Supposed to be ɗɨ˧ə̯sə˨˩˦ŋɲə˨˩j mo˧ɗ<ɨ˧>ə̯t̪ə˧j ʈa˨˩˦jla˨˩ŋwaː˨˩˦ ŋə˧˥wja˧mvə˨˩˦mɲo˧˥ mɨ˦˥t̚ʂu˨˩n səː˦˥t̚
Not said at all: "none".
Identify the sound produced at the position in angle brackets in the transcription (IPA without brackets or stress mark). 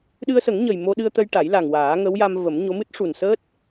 ɨ˧